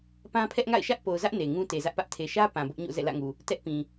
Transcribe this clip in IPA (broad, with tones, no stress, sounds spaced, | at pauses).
p ã˦ pʰ ɛ˦ ʔ ŋ a̰˦˨ ɪ̯ ʃ ä˦ ʔ p o˨ ʊ̯ z ä˦ ʔ n e˨ ŋ ũ˦ t e˨ z ä˦ ʔ p ä˦ ʔ tʰ e˨ ʃ ä˦ p ã˨ b ʊ˦ ʔ ɲ o̰˦˨ z ɛ̰˦˨ l ä̰˦˨ ŋ u˨ | t ɛ˦ ʔ p ĩ˨